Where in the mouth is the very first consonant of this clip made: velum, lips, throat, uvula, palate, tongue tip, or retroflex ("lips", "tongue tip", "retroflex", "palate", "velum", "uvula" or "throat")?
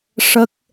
retroflex